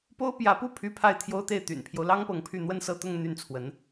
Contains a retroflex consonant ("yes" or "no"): no